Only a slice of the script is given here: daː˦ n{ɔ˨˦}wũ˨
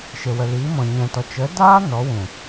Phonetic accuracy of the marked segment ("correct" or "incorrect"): correct